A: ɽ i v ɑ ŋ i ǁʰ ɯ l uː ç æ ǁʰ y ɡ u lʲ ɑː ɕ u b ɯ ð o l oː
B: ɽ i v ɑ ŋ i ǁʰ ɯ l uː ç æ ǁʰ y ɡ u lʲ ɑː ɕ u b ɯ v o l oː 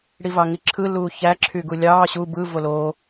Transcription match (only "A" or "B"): B